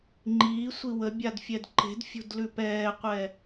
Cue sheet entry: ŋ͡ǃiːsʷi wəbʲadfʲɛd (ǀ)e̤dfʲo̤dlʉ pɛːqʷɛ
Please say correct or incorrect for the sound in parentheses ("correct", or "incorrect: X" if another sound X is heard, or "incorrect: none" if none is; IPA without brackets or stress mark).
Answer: incorrect: ǃ